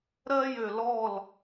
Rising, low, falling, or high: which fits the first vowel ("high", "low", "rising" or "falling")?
high